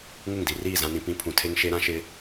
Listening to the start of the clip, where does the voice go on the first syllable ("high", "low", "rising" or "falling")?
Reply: falling